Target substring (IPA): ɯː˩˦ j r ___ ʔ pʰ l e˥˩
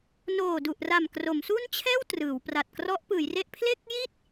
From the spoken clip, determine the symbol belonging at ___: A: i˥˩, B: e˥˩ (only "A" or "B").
B